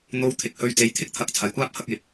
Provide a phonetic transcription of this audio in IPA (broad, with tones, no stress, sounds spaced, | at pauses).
n̪ o˧ w t̪ʰ ɪ˨˥ k̚ h ɵ˧ ɥ t͡s e˨˧ j t̪ʰ ɪ˥ k̚ t̪ʰ ɐ˨˥ k̚ t͡sʰ ɐ˨ j kʷ aː˥ p̚ h ɐ˨˥ k̚ j ɪ˨˥ k̚